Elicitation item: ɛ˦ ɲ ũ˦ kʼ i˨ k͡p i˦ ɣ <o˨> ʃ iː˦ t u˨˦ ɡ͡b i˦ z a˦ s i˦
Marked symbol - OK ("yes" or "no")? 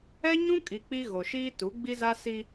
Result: yes